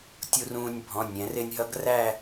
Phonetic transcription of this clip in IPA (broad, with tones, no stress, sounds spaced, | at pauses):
tʲ u˧ r ũː˧ nʲ bʱ ɔ̃˩˧˩ nʲ ɛ̃˩˧ r ɪ˧ nʲ ɦ ʌ˧˥ ɡ r æ˥˧